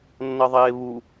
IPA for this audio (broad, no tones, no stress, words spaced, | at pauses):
nːʌðˤeːβu